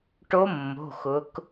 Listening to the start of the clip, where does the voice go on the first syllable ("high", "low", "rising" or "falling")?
rising